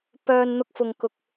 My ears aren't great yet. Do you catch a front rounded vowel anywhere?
yes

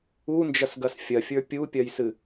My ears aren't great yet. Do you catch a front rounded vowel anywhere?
no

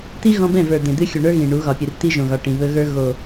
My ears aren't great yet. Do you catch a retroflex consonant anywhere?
yes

